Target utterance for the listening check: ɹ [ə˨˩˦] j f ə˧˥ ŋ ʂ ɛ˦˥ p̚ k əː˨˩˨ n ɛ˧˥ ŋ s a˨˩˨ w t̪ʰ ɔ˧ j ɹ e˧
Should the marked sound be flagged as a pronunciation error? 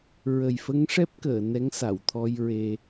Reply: yes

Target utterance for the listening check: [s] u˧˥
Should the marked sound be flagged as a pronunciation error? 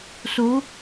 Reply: no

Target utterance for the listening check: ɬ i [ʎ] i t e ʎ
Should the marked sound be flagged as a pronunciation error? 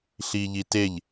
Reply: no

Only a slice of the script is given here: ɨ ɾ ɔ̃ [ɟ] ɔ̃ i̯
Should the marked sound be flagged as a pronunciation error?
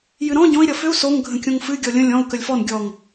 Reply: no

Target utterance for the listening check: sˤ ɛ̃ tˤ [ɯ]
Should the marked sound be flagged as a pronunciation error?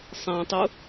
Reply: yes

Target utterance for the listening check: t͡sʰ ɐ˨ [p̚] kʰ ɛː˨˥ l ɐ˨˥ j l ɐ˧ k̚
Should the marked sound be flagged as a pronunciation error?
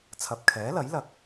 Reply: no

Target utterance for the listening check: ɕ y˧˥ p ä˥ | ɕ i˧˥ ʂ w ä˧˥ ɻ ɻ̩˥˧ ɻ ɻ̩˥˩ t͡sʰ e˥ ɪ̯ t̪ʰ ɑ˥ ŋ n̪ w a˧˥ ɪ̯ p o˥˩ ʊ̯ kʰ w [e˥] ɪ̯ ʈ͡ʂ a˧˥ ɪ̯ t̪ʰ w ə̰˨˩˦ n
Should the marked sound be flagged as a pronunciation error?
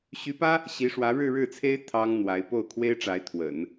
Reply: no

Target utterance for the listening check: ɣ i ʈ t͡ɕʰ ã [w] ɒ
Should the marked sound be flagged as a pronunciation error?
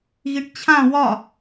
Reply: no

